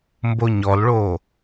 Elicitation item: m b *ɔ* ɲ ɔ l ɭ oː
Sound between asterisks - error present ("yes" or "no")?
yes